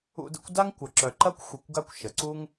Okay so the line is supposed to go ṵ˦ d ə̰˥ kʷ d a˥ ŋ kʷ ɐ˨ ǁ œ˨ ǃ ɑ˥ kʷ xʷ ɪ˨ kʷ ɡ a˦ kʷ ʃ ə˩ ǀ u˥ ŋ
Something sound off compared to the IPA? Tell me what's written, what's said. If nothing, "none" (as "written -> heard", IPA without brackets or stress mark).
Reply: ɑ˥ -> ɐ˥